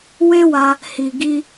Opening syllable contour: high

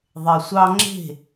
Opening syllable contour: low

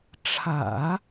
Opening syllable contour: low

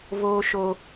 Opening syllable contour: high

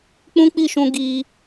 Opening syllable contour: high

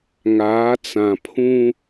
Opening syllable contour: rising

